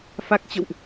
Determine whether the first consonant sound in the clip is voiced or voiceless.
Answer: voiceless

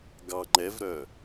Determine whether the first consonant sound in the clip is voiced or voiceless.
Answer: voiced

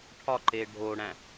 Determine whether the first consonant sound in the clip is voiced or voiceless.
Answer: voiceless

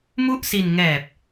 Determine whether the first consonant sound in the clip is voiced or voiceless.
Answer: voiced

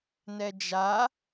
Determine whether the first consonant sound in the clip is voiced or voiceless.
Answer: voiced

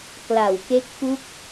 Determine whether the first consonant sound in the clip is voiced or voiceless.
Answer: voiceless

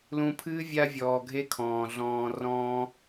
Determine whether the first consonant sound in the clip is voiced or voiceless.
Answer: voiced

